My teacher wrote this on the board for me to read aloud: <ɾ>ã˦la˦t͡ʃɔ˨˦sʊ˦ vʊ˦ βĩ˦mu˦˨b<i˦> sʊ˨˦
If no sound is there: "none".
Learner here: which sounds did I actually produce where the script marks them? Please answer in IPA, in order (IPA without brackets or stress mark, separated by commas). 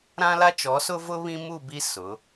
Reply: ɾ, i˦